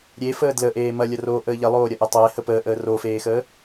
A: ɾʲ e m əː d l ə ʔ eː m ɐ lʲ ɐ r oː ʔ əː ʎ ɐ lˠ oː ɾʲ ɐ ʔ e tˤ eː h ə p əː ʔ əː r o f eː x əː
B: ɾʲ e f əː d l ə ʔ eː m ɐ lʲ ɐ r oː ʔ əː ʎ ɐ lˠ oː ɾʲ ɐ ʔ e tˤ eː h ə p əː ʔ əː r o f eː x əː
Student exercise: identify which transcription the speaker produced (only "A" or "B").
B